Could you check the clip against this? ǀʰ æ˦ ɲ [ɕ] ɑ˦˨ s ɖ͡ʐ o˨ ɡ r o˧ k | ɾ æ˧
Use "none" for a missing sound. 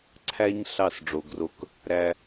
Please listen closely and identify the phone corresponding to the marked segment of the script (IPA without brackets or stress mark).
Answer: ɬ